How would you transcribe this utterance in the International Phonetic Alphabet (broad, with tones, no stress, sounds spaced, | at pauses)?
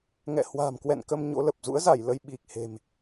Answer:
ŋ ɛ̰˧˨ h w a̤˨˩ m k w ɛ̰˧˨ n k ə˧ m ɲ o̰˧˥ l ə˨˩ p̚ z ṵ˧˥ ə̯ z a˧˩ j l ə˧ j ɓ i˨˩ k̚ h e̤˨˩ m